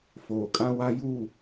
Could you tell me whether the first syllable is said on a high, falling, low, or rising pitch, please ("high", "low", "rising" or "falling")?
low